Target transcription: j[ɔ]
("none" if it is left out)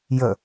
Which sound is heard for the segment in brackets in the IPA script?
ə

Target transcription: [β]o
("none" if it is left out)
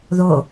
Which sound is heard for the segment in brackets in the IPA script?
ð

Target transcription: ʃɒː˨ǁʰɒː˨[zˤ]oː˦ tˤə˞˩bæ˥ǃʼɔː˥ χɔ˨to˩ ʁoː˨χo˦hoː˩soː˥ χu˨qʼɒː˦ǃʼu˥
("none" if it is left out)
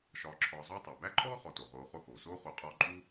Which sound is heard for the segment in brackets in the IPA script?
zˤ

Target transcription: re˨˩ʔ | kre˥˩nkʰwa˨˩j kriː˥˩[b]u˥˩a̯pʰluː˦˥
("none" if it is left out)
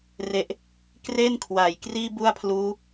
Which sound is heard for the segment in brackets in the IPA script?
b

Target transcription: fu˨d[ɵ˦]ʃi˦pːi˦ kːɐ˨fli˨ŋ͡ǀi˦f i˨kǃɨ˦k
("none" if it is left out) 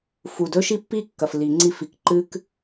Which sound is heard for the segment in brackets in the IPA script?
ɵ˦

